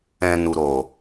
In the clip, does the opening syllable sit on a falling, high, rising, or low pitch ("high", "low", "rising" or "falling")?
low